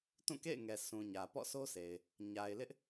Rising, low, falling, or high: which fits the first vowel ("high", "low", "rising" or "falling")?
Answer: falling